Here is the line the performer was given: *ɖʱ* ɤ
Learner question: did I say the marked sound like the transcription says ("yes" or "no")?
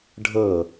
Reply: yes